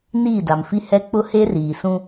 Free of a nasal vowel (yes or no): no